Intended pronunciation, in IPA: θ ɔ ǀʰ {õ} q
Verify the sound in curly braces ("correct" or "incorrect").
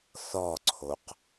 incorrect